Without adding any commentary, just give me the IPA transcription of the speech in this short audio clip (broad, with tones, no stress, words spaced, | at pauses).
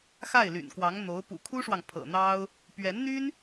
xa˥˩ɪ̯ly̰˨˩nkwɑ˧˥ŋn̪o˧˥ʊ̯ pṵ˨˩kʰu˥ʂwɑ˨ŋ pʰɤ̰˨˩ n̪ɑ˥ʊ̯ | pɥɛ˧˥nn̪y˥n